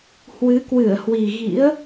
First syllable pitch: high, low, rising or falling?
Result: rising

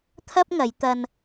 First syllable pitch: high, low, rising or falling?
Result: high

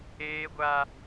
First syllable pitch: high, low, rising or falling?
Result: high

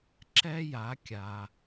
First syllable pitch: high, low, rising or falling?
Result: high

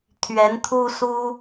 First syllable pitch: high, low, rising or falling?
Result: rising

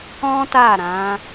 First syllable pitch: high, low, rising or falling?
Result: high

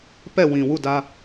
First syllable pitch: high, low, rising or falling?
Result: falling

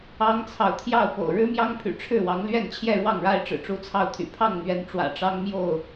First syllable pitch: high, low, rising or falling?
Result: high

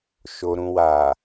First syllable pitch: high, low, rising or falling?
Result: low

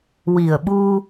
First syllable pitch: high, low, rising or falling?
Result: low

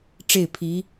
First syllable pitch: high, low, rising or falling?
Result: falling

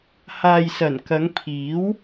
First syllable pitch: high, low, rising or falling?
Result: low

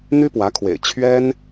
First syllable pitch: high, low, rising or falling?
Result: high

